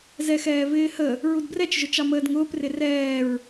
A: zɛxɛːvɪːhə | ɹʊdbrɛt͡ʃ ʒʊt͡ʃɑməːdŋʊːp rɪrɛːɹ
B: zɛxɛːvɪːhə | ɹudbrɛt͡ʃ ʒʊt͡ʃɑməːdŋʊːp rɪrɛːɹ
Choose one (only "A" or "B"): B